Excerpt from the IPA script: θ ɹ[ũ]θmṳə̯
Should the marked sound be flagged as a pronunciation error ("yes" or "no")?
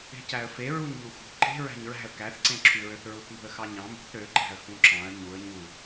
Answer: yes